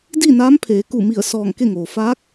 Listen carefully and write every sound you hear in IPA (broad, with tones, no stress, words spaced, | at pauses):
diː˥˨naː˧˥mpʰeː˩˧ku˧˩ mi˧˩ə̯sɔː˧˩ŋ ke˥˨ŋoː˩ faː˧˥k̚